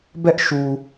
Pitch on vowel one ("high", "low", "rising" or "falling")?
high